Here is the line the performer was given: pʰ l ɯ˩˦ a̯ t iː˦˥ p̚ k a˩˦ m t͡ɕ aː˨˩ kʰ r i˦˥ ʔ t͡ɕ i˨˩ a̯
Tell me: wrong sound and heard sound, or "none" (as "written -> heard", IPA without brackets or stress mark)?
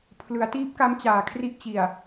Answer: a˩˦ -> a˦˥